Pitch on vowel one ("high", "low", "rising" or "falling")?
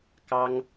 high